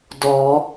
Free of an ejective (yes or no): yes